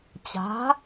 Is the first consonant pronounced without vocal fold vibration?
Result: yes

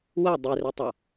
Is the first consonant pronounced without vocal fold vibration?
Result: no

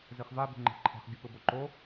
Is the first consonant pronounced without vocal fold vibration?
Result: no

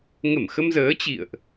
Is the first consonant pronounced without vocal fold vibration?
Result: no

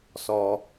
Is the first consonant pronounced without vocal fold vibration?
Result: yes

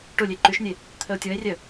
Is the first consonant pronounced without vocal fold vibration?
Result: yes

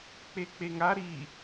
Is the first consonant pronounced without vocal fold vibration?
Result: yes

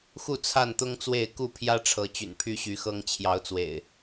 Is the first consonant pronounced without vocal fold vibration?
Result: yes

